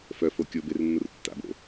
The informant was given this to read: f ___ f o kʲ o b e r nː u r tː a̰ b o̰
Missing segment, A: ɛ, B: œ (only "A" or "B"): B